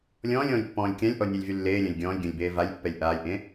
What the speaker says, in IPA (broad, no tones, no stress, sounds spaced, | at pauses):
lʲ ɔ̃ː lʲ ɔ̃ː lʲ pː ɔ̃ː lʲ kʲ ã lʲ ʔ ɔ nʲ a lʲ v y lː eː lʲ ã lʲ ɡʲ ɔ̃ː lʲ ɡʲ ɔ̃ lʲ b eː v a lʲ pː ɛ lʲ ʔ aː lʲ ʔ ẽ